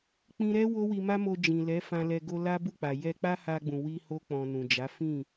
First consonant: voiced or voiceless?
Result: voiceless